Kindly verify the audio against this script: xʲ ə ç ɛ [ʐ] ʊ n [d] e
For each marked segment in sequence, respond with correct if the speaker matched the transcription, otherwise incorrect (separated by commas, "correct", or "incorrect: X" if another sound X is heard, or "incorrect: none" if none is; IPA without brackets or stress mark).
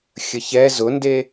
incorrect: z, correct